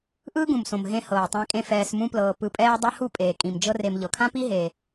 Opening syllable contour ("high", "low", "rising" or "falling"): high